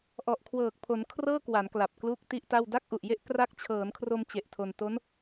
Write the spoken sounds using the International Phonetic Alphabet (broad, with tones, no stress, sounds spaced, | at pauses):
ʔ ɔ˨˩ ʔ kʰ w ɤː˨˩ k̚ pʰ o˩˦ n kʰ r ɤː˥˩ k w a˩˦ n k l a˨˩ p̚ k l uː˥˩ k̚ t i˥˩ ʔ t a˥˩ w d a˥˩ k̚ ʔ u˨˩ ʔ j e˥˩ ʔ k r a˦˥ k̚ t͡ɕʰ ɤː˩˦ n kʰ r o˧ m t͡ɕ e˨˩ ʔ tʰ o˧ n t o˦˥ n